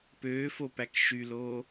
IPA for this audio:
pøːfopæk ʃyloː

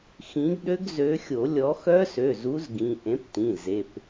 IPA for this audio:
xĩ˨˥ɡɗø˦˥ɡ zø˨˥xʲo˨˩˦lʲɔ˨˥ xœ˦˥sø˩˧˩zu˨˥z ɡĩ˩˧˩ ʔẽ˨˥ptĩ˩˧˩ ze˩˧˩p

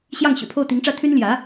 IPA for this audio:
ɕjɑ˥˩ŋɕy̰˨˩pʰo˥˩ʊ̯ t̪i˧˥ŋʈ͡ʂä˥˩ t̪ʰy˥nljä˧˥

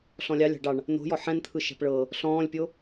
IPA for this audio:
ɬɔ̃lʲɑlʲɑ̤ ɖɑɳ | no̤jɔ ħɛ̃nt̪ʰɯʃɛ̤p ɭɤ | ɬɔ̃ːlʲpʲo

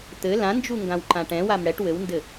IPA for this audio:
t̪ɘ lãnd͡ʒuŋɡãwǃã ʈɛ̃wam ɽɛʈ wɘwndɘ

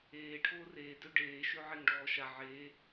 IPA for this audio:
eː ʈʰoːreː døɖeː ʃøʕeŋɖɔːʃa ʕe

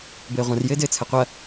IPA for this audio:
bɘːʁʷɐ̃r jɘːdɘːt͡sʰɘqʷɐ

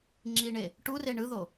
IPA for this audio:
ŋ͡ǁiɳe | ʈure ɳɯðo

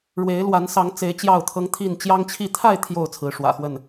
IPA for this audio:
ɻwe˨˦ɪ̯lwa˨˦n sɑ˨˦ŋt͡se˨˦ɪ̯ t͡ɕjɑ˥˨ʊ̯t̪ʰɤ˦ŋt̪ʰi˥˨n t͡ɕjɑ˦ŋt͡ɕʰi˥˨ t̪ʰa˥˨ɪ̯ t̪ʰjo˥˨ʊ̯t͡sʰɹ̩˨˦ ʂwä̰˨˩xwə˥˨n

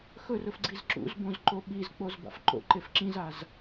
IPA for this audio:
xɵrɵfɡ͡ǀiz ǁṵzbõzǃo ɓizk͡pozba̰f ǃo̰ǃef ǁĩzaz

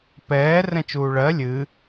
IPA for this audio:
pɛː rɛ̃t͡ʃuːɭɜ lʲɨ

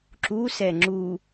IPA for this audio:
ǁusɛ ŋ͡ǁu

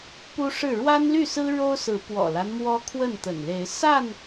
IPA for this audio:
pu˦ʂɻ̩˥˨ ɻwa˦nly˥˨sɹ̩˦ ɻo˦ʊ̯sɹ̩˨˦pwɔ̰˨˩la˦n mwɔ˦kʰwə˥˨nt̪ə̰˨˩n le˨˦ɪ̯ sa˥˨n

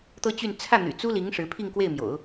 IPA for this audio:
t̪ɤ˥t͡ɕy˥˧n t͡sʰä˥˩n̪y̰˨˩ t͡su˥li˧˥ŋ ʂɻ̩˧˥pʰi˥˧ŋkwe˥˩ɪ̯mjo̰˨˩˦ʊ̯

